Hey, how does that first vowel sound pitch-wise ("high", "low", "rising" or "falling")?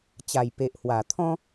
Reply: low